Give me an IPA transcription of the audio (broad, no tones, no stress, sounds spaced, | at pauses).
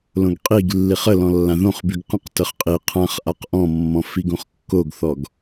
l õ ɡ qʼ i ɡ lː i χ ə l ɔ̃ lː ã ð õ χ b y ɡ q ə̃ q t ə χ qʼ i qʰ ã χ ʔ a q ʔ ɔ̃ mː ɔ̃ f i ɡ õ χ kː o ɡ θ ɔ ɡ